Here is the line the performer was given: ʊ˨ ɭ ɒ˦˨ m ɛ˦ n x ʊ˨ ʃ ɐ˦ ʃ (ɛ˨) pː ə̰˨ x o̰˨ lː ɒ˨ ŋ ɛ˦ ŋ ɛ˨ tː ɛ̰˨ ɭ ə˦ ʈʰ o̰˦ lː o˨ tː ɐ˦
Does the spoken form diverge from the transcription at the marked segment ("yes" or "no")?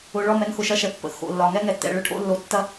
no